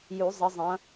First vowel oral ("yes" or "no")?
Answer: yes